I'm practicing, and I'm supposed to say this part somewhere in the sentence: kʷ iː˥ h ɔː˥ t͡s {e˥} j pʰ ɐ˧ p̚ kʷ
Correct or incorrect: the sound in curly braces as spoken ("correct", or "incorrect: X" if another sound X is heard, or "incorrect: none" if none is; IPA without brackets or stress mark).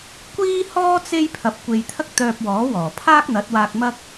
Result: correct